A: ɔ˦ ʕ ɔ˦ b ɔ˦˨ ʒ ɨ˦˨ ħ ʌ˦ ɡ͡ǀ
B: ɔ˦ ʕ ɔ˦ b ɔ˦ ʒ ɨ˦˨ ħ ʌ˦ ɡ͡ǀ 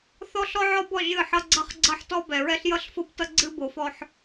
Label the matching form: A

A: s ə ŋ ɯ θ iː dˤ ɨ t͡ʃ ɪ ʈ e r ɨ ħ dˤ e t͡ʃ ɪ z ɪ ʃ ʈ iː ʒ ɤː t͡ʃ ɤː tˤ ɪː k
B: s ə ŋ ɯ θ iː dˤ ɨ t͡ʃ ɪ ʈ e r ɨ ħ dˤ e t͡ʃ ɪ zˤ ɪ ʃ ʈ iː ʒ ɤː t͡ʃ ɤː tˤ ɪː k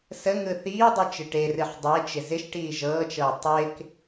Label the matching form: A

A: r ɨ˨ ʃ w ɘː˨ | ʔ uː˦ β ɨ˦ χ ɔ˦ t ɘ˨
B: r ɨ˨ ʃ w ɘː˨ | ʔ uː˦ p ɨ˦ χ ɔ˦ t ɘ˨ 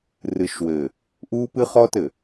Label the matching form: B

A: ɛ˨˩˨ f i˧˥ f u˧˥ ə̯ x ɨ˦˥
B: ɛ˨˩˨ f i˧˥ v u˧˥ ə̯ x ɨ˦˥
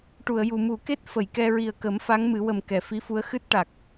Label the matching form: A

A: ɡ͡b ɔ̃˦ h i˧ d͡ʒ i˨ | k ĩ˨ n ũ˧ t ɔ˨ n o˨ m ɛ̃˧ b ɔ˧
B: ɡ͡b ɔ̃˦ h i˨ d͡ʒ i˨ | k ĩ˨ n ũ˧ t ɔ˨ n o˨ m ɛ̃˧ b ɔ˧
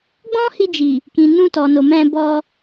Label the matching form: A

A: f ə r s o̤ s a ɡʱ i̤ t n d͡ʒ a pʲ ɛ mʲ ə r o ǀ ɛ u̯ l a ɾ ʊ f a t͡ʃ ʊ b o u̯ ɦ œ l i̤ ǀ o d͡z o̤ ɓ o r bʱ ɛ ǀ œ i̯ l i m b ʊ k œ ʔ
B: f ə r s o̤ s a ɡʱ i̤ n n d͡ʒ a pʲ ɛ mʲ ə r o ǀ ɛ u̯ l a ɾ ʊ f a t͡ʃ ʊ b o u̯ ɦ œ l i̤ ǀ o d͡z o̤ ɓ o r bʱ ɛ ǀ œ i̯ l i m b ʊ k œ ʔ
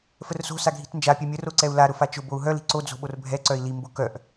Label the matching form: A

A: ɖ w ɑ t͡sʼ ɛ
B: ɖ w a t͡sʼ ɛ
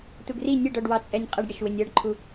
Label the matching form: A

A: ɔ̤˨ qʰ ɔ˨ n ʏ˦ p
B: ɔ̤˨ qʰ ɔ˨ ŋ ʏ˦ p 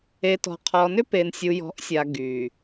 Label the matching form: A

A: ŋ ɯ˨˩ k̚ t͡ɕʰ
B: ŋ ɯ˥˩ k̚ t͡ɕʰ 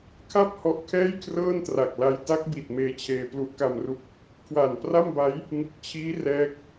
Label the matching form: A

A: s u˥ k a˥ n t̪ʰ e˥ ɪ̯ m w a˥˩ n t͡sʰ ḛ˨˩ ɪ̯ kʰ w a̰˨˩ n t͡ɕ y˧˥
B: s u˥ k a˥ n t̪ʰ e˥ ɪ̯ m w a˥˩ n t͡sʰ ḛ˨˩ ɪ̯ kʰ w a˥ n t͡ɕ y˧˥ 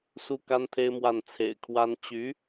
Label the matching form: B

